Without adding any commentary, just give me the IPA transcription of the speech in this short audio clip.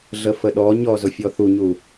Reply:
ɮ ə f ə ɗ ɔ ɲ ɔ z ʊ fʲ ɔ θ u ɲ u

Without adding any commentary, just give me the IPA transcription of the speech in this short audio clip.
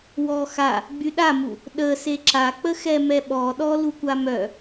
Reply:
w ɔ x a | ɡ͡b y ɗ a m u | ɗ ə s e ǁ a k͡p ə x ɛ m ɛ ɓ ɔ ɗ ɔ l u kʷ a m œ

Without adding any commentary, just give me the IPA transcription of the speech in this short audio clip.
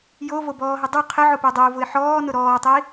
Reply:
j o v o b ɔː ɦ ɪ dˤ u qʰ ɪ ʕ ʊ p e dˤ ɛ ʊ̯ v ʊ ɪ̯ ħ ɔː n ʊ ɾ ɔː tˤ i

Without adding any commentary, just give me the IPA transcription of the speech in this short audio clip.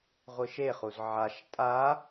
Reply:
ʁʷ ɯ ʃ e χ u z ʕ a ʃ tʼ a

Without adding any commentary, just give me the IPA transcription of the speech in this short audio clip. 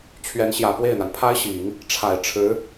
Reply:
t͡ɕʰ ɥ ɛ˧˥ n ɕ j ä˨˩ p w e˥˩ ɪ̯ n̪ a˩ n pʰ a˥ ɪ̯ ɕ i˨˩˦ ŋ | ʈ͡ʂʰ a˨˩ ɪ̯ ʈ͡ʂʰ ɻ̩˧˥

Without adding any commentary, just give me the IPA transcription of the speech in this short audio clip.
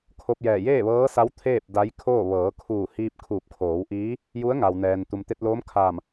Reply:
kʰ o˧ p̚ j ɛː˧˩ j eː˥˨ ʋ ɤː˧˥ s a˧˥ w t̪ʰ eː˥˨ p̚ d a˧˥ j kʰ oː˥˨ ʋ ɤː˩˧ kʰ uː˧˩ h iː˧ p̚ kʰ uː˧˩ p̚ kʰ oː˩˧ w ʔ iː˧˥ | j u˧˥ ə̯ ŋ a˩ w n ɛː˩ n t̪ u˩ m t̪ e˧ t̚ l oː˧˥ m kʰ aː˧˩ m

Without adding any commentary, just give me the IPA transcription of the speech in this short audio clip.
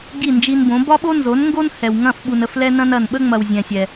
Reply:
ɡ i˦˨ n d͡ʒ i˧ n b õ˨˦ b ɒ˦ ɓ o˦ n z o˨˦ n ŋ ɡ o˦ n h ɛ˨ w ŋ ɐ̃˦˨ f ɓ u˨ n ə˨ f l ɛ˧ n ɐ̃˧ n ɐ˨ n ɓ ə˦ ŋ͡m ɐ˨ w zʲ ɛ̃˨ sʲ ɛ˨

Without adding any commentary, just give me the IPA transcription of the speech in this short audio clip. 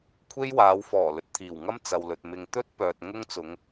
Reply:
kʷʰ e˥ j w aː˨˧ w f ɔː˨˩ l ɵ˨ t̚ t̪ʰ iː˨˩ w ŋ ɐ˥ m t͡s ɐ˨ w l ɵ˨ t̚ m ɪ˨ ŋ t̪ ɵ˥ t̚ p œː˨ t̚ ŋ ʊ˥ ŋ t͡s ʊ˨˧ ŋ

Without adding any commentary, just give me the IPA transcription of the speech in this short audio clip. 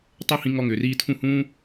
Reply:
tˤ ɵ˦ h ĩ˧ ŋ ɔ˦ ŋ ʏː˨ r iː˧ tʰ ũ˦˨ h ũː˦

